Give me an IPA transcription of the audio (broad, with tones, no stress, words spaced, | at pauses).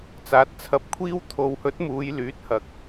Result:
t͡saː˨˥t̚t͡sʰɐ˧p̚kʷʰiː˥w t̪ʰo˨whɵ˨˥t̚ muː˨˧jlyː˨˥t̚hɐ˨k̚